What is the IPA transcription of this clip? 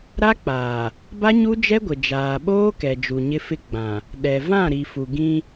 ɾ a˦ k͡p aː˨ | b a˦ ɲ u˦ d͡ʒ ɛ˦ ɡʷ ɪ˨ d͡ʒ aː˨ ɓ oː˦ k ɛ˨ d͡ʒ u˨ ɲ ɪ˦ f ɪ˦ ɡ͡b ã˨ | ɗ ɛ˨ v ã˦˨ ɾ i˨ f u˨ ɡ ĩ˦

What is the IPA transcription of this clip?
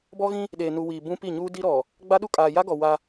b ɔ˦ ɣ ĩ˦ | ɗ eː˨ n u˨ w iː˨ b ũ˦ p i˦˨ ɲ uː˦ d i˦ ɾ ɔ˨ | ɡ͡b a˦ ɗ u˦ kʼ aː˨ j a˦ ɡ ɔ˨ w a˦

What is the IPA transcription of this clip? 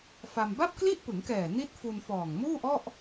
f a˧ m b a˥˩ p̚ k l i˥˩ ʔ p ɯ˩˦ ŋ k ɛː˨˩ n i˦˥ t̚ f u˧ n f ɔː˨˩ ŋ m uː˥˩ ʔ ɔ˥˩ ʔ

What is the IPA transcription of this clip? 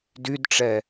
d y d ʈ͡ʂ ɛ

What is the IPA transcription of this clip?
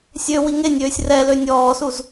sʲ ø w i ŋ e nʲ øː sʲ r ɛ l ø nʲ ɔː s u z

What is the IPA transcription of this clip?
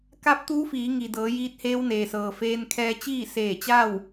k a˧˥ p̚ t̪ uː˧˥ f iː˩˧ ŋ i˩ d ɤː˩˧ j iː˧˥ t̚ h eː˧˥ w n eː˩ s ɤː˩ f eː˧ n kʰ ɛː˧ t͡ɕ iː˥˨ s eː˧˩ t͡ɕ a˥˨ w

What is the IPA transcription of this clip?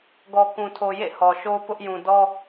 ɡ ɔ˨ k ũ˨ tʰ o˨ j ḛ˦˨ h ɔ˨ ʃ o˦ p ʊ˦ ʔ j ũ˨ d ɔ˦

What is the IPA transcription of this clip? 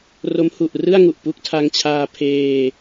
r o˦˥ m h u˨˩ ʔ r ɯ˥˩ a̯ ŋ u˨˩ ʔ p u˦˥ k̚ tʰ a˧ ŋ t͡ɕʰ aː˧ pʰ eː˧

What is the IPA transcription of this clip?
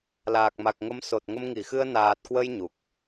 l aː˨˩ k̚ m a˨˩ k̚ ŋ ə˨˦ m s o˨˩ t̚ ŋ ə˧ m ŋ i˧˩ x ɨ˧ ə̯ n aː˨˩ t̚ k w ə˧ j ɲ u˨˩ k̚

